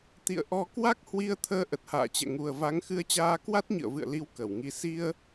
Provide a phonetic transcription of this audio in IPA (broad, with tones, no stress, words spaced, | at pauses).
t̪ḭ˧˨ə̯ʔɔ˧ kwa˦˥k̚hwi˧ə̯t̪ʰəː˧ ʔə˨˩t̚ha̰ː˧˨t͡ɕɛ̰˧˨ ŋu˨˩ə̯va˨˦ŋxɨ˧ə̯t͡ɕaː˧ kwa˦˥t̚ɲɨ̰˧˨ə̯vɨ̰˧˨ə̯li˨˦w kə˧˩wŋi˧ si˧ə̯